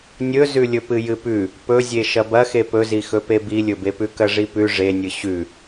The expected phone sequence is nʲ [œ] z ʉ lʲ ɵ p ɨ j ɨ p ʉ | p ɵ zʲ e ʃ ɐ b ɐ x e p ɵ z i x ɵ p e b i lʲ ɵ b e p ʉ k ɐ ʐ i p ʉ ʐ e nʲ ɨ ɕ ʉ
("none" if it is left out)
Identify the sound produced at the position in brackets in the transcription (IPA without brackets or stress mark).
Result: ɵ